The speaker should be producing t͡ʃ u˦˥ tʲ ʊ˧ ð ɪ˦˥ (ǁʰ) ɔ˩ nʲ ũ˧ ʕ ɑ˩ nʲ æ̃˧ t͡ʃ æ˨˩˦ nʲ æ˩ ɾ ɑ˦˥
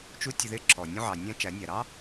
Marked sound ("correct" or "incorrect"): correct